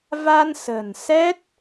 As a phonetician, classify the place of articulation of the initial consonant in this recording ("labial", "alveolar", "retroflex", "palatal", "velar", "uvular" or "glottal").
labial